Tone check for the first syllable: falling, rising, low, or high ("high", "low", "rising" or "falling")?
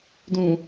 low